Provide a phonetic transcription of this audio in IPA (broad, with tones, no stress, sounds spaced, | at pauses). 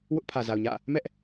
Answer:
w ʊ˦ ʔ pʰ ä˨ z a˨ ʊ̯ ɲ ä̰˦˨ | m ɛ˦ ʔ